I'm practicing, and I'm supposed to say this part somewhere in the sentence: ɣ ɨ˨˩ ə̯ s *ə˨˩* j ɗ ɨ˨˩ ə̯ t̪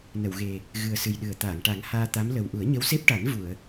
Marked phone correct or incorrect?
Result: incorrect